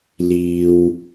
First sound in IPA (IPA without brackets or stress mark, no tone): l